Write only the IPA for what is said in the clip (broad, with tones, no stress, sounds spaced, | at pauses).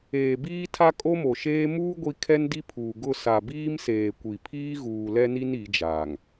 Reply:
eː˨ b iː˦ tʰ a˦ kʼ o˦ m o˨ ʃ eː˦ m uː˦ ɡʷ i˦ kʰ ɛ˦ n d i˦ pʰ uː˨ ɡ ʊ˦˨ s a˨ b iː˦ m s eː˨ kʷ i˨ pʰ iː˦ ɣ uː˨ l ɛ˦ n i˦ n i˨˦ d͡ʒ aː˨ ŋ